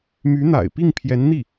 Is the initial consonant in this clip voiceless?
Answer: no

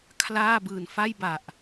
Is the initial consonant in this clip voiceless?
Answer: yes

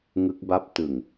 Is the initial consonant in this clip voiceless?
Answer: no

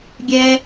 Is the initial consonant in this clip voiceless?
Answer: no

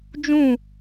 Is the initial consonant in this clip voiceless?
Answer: no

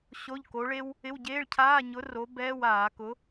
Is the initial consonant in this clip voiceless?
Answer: yes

